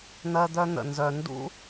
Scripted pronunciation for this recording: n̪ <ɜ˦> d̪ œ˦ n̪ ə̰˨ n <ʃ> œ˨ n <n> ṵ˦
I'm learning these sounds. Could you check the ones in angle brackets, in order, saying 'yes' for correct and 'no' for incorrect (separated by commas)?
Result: yes, no, no